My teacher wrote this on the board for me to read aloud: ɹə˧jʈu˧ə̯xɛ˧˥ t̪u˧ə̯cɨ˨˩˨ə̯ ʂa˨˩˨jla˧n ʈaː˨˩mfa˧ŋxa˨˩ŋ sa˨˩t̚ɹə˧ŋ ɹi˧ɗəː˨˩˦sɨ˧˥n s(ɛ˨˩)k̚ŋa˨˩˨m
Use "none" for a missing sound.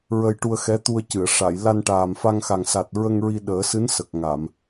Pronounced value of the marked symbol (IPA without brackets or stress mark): ə˨˩